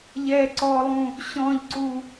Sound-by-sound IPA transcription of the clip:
ʎ ɛ ǀ ɔ lˠ ũ | ɕ ɔ̃ ʎ ǀ u

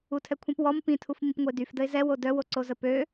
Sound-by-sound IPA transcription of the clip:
u tʰ ɛ kʷʰ ĩ p w ɔ m p ĩ tʰ u f m ĩ p ŋʷ ə ɪ̯ d y f d ə ɪ̯ z ɛ w o d œ w o ǀ o z ə p ø

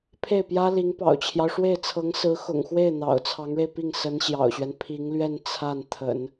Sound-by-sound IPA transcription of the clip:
pʰ e˥˩ ɪ̯ p j ä˥ l i˧˥ ŋ p ɑ̰˨˩ ʊ̯ t͡ɕʰ j ɑ˦ ʊ̯ ʂ w e˥˩ ɪ̯ t͡sʰ ɤ˧˥ ŋ s ɹ̩˧˥ x ʊ̰˨˩ ŋ x w e˥˩ ɪ̯ n̪ ɑ̰˨˩ ʊ̯ t͡sʰ ɑ˧˥ ŋ ɻ e˧ ɪ̯ p i˥˩ ŋ s ə˧˥ n ɕ j ɑ̰˨˩ ʊ̯ ɕ ɥ ɛ˦ n pʰ i˧˥ ŋ l ɥ ɛ˥˧ n t͡sʰ a˥˩ n t̪ʰ ə̰˨˩˦ n

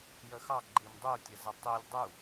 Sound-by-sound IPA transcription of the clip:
j ə x ɑ ɡ͡ǃ i m dˤ u tʲ ə z ə tˤ i lʲ dˤ u

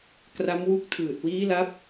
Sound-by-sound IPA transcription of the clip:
k r a˦˥ m w u˦˥ k̚ tʰ ɯː˨˩ t̚ w iː˦˥ l a˦˥ p̚

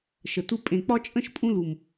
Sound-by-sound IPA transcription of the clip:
ʃ ə˨ t u˧ pʼ ẽ˨ k͡p ɒ˦ t͡ʃʼ ə̃˦ ʃ pʼ ũ˧ l u˨ m

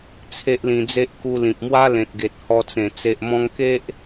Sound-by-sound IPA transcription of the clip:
t͡sʰ e˦ ʔ l ĩ˧ d͡z e˦ ʔ k u˧ l ĩ˨ p̚ m w a˦ l ẽ˨ t̚ ɡ e˨ t̚ h ɔ˧ t͡s ẽ˨˩ t͡s e˨ ʔ m ɔ̃˧ ŋ k e˦ ʔ

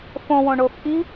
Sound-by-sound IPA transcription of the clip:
f õ w õ ɳ o f ʔ i

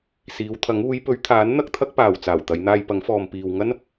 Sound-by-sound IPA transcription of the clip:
s iː˨˧ w t̪ʰ ɐ˨˥ ŋ uː˨˧ j p ɵ˨˧ ɥ t̪ʰ aː˨˥ n n̪ ɐ˥ k̚ t̪ʰ ɐ˥ k̚ p aː˨ w t͡s aː˨˩ w t̪ ɐ˨˧ j n̪ aː˧ j p ɐ˨˥ ŋ f ɔː˨ m p iː˨ w ŋ ɐ˥ n

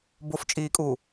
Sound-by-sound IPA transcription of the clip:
b o f t͡ʃʼ iː kʼ uː

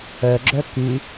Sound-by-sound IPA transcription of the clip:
œ ɡ͡ǁ œ k y

